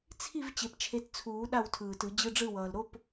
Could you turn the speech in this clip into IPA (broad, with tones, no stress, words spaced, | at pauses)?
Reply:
t͡sʰi˥˨v t͡ɕe˨˩pt͡ʃʰe˨˦tt͡sʰuː˨˩˦ ɗa˥˨wtʰɯː˨˩tɯ˨˩˦ d͡ʑɯ˧˥˧ɖ͡ʐɯ˥˨wʌː˨˩l ɾo˧˥˧p